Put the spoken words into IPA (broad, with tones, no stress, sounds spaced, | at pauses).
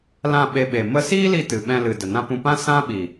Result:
l ã˦˨ ɓ e˧ ɓ e˨ m ə˧ s iː˦ l i˧ t ɨ˨ ɓ ɛ̃˧ l ɨ˨ d ə˨ n ã˧ p ũ˧ p ã˦ s ã˦ ɓ i˨